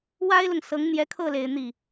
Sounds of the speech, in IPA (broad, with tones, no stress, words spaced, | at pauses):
wa˥ɪ̯lʊ˨ŋ sɤ˧˥ŋn̪jɛ˧˥kʰɤ˥˩le˨˩ɪ̯ n̪i˥˩